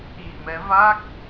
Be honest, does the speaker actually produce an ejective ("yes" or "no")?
no